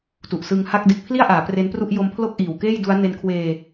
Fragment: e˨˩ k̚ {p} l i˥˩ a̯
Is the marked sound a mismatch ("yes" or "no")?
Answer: yes